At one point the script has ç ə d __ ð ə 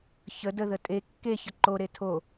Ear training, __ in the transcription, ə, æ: ə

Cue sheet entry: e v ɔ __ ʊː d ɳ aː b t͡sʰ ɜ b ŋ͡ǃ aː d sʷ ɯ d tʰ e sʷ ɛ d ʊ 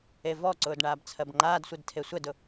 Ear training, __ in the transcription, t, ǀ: ǀ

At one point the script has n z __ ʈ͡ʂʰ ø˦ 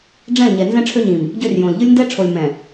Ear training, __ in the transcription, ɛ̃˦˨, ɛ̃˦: ɛ̃˦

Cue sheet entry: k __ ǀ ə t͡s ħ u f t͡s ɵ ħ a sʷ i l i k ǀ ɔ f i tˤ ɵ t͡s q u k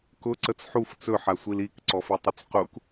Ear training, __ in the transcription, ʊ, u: ʊ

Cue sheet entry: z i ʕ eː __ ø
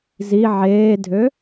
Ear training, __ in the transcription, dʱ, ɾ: dʱ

